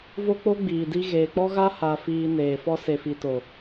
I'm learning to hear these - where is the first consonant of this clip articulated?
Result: lips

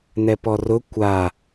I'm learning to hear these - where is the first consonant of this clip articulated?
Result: tongue tip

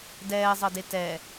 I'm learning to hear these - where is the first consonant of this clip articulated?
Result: tongue tip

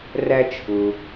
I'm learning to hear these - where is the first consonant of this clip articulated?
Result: tongue tip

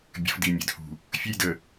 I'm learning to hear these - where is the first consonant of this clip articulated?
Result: lips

